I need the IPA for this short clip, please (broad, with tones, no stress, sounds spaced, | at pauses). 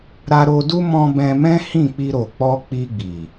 ɾ a˧ ɾ o˧ d u˦ m ɔ̃˧ b ɛ̃˧ m ɛ̃˦ h ĩ˦˨ k͡p i˧ ɾ o˨ k͡p ɔ˧ k͡p i˧ ɡ͡b i˨